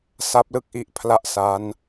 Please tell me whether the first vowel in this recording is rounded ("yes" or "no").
no